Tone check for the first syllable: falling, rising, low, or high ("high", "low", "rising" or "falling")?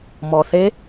low